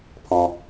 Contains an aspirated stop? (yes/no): yes